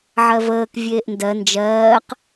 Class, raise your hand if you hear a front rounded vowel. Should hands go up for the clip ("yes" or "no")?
no